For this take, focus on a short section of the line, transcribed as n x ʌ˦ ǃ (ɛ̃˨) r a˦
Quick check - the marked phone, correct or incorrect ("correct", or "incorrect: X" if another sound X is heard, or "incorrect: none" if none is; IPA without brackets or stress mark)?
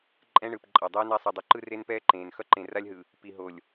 incorrect: ẽ˨